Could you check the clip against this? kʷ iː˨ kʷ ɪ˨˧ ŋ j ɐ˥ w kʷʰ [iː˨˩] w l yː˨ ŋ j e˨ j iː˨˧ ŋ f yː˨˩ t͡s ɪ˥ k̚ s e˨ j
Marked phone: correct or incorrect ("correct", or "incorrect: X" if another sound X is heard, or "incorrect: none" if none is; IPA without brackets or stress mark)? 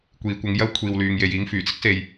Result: incorrect: iː˨